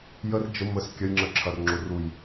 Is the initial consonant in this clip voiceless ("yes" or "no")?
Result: no